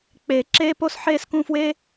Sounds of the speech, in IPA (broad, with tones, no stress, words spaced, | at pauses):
k͡peː˨ ǁeː˧po˧sħeː˧s kũ˧fweː˦